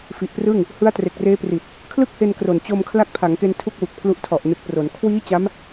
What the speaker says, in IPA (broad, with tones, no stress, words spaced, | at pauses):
fi˨˩ʔprɯ˥˩ŋ | hɯ˦˥a̯tre˨˩k̚reː˦˥pri˨˩t̚ | kʰlɯ˥˩k̚he˧nkro˨˩n t͡ɕo˧mkʰla˦˥k̚pʰa˩˦ŋke˧n tʰu˥˩k̚wu˨˩k̚pʰlu˦˥ʔ tʰɔ˨˩ʔnɯ˨˩k̚pro˩˦n kʰwiː˦˥ t͡ɕa˦˥m